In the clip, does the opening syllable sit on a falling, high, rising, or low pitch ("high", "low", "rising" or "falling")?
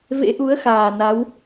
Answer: rising